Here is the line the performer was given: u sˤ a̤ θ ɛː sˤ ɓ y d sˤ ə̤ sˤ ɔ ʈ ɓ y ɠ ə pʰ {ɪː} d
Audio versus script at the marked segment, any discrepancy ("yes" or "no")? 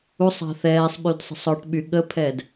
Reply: yes